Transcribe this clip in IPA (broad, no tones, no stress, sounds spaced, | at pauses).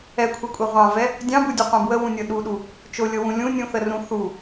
ɛ kʷʰ ɛ kʷʼ ɛ ʁʷ ɑ̃ v ɛ | dʲ ɑ̃ b u dʲ o qʷ ɛ̃ b w ə w ũ nʲ ɤ ɗ u ɗ u | t͡ʃ o lʲ ɤ w ũ lʲ ũ nʲ ũ θ ə r ũ θ u